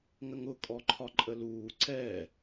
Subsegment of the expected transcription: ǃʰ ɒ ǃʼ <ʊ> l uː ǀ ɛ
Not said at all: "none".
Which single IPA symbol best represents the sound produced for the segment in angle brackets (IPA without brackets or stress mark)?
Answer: ə